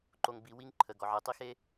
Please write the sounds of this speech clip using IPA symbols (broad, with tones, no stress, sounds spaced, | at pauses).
ǃ o˨ ŋ b i˨ w i˦ ŋ ǃʰ ə˨ ɡ ɔ˨ ʕ e˨ tˤ i˦ x e˦